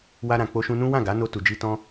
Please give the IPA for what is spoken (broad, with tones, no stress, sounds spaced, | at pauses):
w a˧ ɾ ã˨ k͡p o˧ ʃ ũ˧ n ũ˦ w ã˦˨ ɡ a˨˦ n o˧ t u˨ d͡ʒ i˧ t ɔ̃˧